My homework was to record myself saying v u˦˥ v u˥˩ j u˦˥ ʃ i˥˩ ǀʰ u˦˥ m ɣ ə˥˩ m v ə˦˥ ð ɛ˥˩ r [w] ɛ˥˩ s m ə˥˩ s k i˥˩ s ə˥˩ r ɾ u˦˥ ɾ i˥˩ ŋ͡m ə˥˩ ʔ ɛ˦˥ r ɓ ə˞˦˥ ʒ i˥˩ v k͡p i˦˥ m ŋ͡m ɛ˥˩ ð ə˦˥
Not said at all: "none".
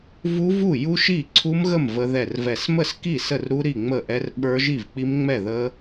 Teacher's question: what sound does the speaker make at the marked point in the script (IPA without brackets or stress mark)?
v